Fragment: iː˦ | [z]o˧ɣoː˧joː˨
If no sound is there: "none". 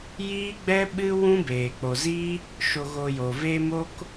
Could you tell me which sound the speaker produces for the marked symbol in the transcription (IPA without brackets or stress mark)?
ʃ